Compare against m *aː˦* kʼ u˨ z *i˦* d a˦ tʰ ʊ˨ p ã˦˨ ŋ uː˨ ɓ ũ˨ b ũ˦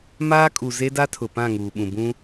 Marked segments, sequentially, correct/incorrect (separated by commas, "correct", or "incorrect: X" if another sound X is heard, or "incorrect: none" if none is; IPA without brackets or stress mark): correct, incorrect: e˦